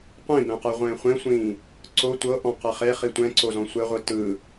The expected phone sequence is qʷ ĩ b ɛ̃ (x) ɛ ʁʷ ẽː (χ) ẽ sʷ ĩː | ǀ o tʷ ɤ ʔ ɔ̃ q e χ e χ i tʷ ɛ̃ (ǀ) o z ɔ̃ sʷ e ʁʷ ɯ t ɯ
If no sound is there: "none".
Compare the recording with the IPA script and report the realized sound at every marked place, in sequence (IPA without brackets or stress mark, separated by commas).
q, χʷ, ǀ